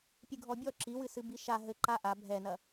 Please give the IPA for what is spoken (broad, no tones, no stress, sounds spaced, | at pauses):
pʲ ɨ ɡʱ ɔ bʲ ɔ ǁ i w ɨ s ɨ b i ʃ a ɦ ɘ ǃ a ʔ a bʱ ɛ n ɐ